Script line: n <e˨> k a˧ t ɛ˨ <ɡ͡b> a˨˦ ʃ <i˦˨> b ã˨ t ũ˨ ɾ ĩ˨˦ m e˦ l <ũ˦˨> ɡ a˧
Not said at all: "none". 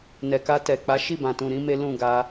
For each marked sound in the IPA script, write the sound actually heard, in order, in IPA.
ɛ˨, k͡p, i˦˨, ũ˦˨

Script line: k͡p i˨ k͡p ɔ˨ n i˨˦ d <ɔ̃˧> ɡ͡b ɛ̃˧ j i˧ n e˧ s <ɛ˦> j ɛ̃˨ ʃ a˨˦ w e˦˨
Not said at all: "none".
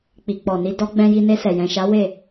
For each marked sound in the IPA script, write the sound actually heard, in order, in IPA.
ɔ˧, ɛ˨

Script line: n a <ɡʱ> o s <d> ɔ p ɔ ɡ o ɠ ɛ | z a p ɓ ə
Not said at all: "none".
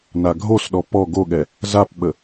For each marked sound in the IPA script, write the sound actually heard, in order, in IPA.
ɡʱ, ɗ

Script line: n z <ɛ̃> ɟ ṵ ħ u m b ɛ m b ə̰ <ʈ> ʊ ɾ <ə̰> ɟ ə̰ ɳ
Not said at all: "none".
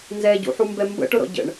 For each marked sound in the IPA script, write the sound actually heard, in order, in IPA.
ɛ, ʈ, ɔ̰

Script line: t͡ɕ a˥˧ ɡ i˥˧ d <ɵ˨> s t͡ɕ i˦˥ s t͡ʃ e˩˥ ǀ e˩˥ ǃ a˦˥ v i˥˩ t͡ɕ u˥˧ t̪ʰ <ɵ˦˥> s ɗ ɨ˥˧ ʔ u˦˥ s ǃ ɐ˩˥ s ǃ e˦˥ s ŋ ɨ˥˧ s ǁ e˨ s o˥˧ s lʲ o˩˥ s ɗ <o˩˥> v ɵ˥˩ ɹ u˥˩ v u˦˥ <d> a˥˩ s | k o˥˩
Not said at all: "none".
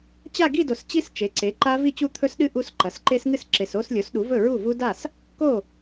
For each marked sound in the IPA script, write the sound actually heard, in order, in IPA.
o˨, ɵ˦˥, u˩˥, d

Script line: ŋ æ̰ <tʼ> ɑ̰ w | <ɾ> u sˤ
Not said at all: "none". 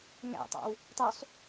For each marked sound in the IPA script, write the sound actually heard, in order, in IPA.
tˤ, tˤ

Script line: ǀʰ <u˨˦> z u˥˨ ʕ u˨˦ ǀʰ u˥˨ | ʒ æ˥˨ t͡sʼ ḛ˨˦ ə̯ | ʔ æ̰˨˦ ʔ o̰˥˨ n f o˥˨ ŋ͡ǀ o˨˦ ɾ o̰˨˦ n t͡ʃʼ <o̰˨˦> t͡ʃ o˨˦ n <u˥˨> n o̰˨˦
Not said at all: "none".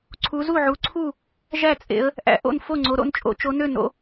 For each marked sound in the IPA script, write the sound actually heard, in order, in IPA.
u˨˦, o̰˨˦, ø˥˨

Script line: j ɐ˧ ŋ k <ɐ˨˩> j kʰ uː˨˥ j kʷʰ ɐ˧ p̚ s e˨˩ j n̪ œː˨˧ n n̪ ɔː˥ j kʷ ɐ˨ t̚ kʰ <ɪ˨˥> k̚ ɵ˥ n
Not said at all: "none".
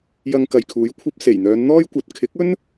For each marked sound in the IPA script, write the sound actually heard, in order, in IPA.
ɐ˨, ɪ˨˥

